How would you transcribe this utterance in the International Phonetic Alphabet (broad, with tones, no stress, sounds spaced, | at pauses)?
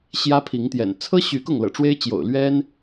ɕ j ä˦ pʰ i˨˦ ŋ t̪ j ɛ̰˨˩ n t͡sʰ ɤ˦ ɕ y˨˦ k ʊ˥˨ ŋ l ɤ̰˨˩ ʈ͡ʂ w e˦ ɪ̯ t͡ɕ j o̰˨˩ ʊ̯ l ɥ ɛ˦ n